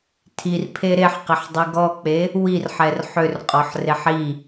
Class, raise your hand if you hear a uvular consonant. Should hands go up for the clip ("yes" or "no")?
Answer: yes